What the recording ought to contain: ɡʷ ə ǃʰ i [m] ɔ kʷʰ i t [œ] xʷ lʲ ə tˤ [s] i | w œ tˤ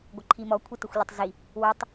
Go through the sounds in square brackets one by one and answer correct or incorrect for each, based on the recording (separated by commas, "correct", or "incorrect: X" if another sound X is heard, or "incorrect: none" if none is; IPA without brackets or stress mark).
correct, incorrect: ə, incorrect: z